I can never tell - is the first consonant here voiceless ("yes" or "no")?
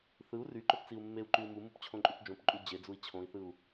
yes